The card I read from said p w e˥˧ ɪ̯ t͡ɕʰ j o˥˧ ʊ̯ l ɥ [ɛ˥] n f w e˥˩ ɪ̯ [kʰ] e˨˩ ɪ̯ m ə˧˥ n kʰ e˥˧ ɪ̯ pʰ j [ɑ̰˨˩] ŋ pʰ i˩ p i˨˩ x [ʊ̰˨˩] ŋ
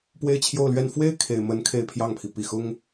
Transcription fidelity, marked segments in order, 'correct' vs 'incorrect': incorrect, correct, incorrect, incorrect

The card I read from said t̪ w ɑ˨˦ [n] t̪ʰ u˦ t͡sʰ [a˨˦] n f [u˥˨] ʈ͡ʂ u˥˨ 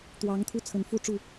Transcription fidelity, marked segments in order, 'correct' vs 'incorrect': incorrect, incorrect, correct

